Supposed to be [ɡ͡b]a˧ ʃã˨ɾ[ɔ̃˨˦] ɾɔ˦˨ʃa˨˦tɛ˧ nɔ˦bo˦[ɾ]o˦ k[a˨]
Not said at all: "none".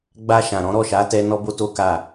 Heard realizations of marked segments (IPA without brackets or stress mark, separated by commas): ɡ͡b, ɔ̃˨˦, t, a˦˨